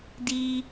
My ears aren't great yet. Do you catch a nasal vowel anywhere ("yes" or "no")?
no